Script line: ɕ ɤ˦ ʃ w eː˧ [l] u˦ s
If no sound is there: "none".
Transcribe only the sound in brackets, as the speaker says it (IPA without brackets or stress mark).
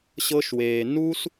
n